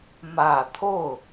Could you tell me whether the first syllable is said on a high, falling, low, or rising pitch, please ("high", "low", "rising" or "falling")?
low